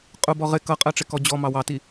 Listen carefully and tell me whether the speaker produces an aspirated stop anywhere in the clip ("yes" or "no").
no